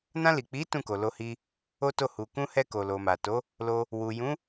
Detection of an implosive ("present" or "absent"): absent